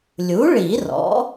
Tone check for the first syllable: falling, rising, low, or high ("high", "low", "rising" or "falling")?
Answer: rising